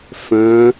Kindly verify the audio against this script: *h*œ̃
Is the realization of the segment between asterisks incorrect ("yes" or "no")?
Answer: yes